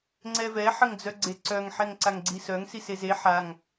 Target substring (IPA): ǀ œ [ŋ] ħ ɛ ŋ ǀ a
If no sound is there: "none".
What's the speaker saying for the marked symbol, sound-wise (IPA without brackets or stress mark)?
ŋ